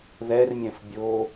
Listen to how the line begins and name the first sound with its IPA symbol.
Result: ð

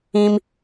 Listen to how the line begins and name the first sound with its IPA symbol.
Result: ĩ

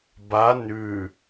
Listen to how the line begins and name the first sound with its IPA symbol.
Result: b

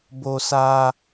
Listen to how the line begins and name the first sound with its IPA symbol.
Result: b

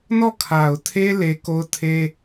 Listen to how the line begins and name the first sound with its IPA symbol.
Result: n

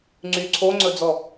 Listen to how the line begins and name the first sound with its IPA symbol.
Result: ŋ͡ǀ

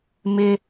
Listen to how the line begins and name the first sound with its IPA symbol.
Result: m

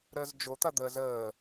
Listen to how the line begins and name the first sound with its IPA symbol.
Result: ɾ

